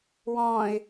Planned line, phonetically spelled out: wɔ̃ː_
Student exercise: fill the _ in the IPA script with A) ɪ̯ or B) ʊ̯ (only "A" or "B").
A